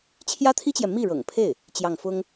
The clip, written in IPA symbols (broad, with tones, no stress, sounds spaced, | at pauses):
t͡ɕʰ j ä˥ t̪ʰ i˥ t͡ɕ j ɛ˨ m i˥˩ ɻ ɤ̰˨˩ ŋ pʰ e˥˩ ɪ̯ | t͡ɕ j ɑ˥˩ ŋ f ʊ˥ ŋ